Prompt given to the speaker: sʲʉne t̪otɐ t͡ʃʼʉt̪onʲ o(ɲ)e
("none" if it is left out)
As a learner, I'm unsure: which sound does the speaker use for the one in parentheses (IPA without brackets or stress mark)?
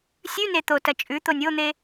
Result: n̪